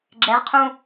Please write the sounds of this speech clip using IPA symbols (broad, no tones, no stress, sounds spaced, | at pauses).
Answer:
ɡ͡ǁ ɛ ʁ qʰ ũ